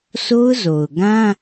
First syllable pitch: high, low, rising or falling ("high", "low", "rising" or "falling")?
high